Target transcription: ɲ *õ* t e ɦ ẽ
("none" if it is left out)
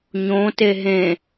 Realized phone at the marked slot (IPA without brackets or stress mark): õ